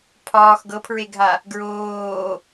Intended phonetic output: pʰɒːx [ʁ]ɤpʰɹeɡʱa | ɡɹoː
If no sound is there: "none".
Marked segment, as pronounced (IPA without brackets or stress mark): ɡ